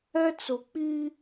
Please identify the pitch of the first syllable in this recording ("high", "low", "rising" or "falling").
high